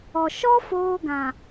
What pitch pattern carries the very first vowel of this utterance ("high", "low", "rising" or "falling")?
low